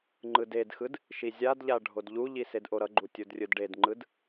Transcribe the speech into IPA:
ŋ͡ǃ ɯ d e d x ɯ d | ʃ i zʲ a d ʎ a ɖʱ o d ʎ u ʎ i s e d ʔ o ɾ ʌ ɡ͡ǃ u tʲ u d rʲ ɯ d ɖ e d ŋ͡ǃ ɯ d

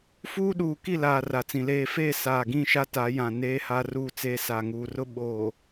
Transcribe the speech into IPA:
f uː˦ ɗ uː˨ k i˦˨ l aː˨ r a˨ t͡s ĩ˨ l eː˨ f eː˦˨ s aː˨ ɡ ĩ˦˨ ʃ a˦ t a˨˦ j ã˨ n eː˦ h a˦ r uː˦˨ t͡s eː˦ s a˨ ŋ uː˨ r ʊ˦ ɓ oː˨

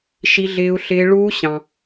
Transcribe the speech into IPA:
ʃ i˦˥ ɮ ɪː˦˥ u̯ ɬ ɪː˦˥ ɭ uː˦˥ ɕ ɑ̃˨

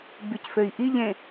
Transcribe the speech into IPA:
b y c f ø i̯ ʔ i ʎ ẽ

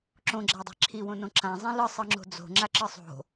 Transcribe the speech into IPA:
ǁ õ ɡ͡ǁ a dˤ e̤ ǁʰ i w õ n õ ǁ ã zˤ ĩ l ɯ sˤ ɯ ŋ͡ǁ o̤ d͡z o̤ ŋ͡ǁ a ǁ ɯ sˤ o̤

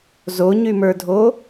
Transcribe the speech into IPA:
z o ɲ y m ə˞ dʱ o

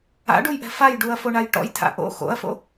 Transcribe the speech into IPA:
a̰ ɖ u j ʔ ɛ̤ f a j ɖ u ɐ̯ f o ɳ a j ʈ ɔ̰ j tʰ a̰ ʔ o̰ x o̰ ɐ̯ f o̰

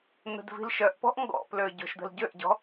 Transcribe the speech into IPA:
n̪ ə̤ d v i̤ l ʃ œ ʔ p ɔ̤ ʔ ŋ ɡ ɔ̰ p l ø ɟ o̤ ʃ d̪ ə̤ l ɟ ø ʔ ɟ ɔ̤

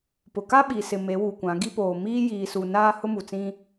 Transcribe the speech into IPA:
p ʊ˨ k a˦ ɓ i˨ s ɪ˨ m e˨˦ w u˨ kʷ ã˨˦ ɡ i˦ p oː˨ m iː˦ j iː˨ s u˨ n aː˦ h ʊ˦ m u˨ t͡s ĩ˦

